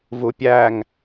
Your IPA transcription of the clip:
vupʲæŋ

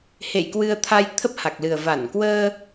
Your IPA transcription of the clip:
hḛ˧˨jkwɨ˧ə̯t̪ʰa˧j t̪ʰə˦˥p̚ha˨˩k̚lɨ˨˩ə̯ va˧˩nkwəː˧

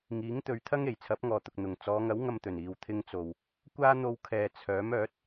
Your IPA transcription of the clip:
ŋiː˨˥ŋt̪ɵ˨˧ɥt̪ʰɐ˥ŋ e˨˩jt͡sʰɐ˨˥p̚ŋɔː˨t̪ʊ˨k̚ n̪ʊ˨˩ŋt͡sɔː˨˧ŋɐ˨˥w ŋɐ˧mt̪ɵ˨˩n iː˨wt̪ʰɪ˧ŋt͡so˨w | kʷaː˥ n̪o˧wkʰɛː˨ t͡sʰœː˨˥mœː˨˥t̚

